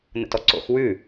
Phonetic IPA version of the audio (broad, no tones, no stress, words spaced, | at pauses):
nə̰tɔǀo̰x wʉ